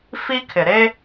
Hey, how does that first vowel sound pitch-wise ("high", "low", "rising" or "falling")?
high